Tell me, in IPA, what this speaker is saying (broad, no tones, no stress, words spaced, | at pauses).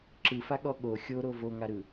ǁɯfaɠɔ ɠo xʲoɾo voŋaɾɯ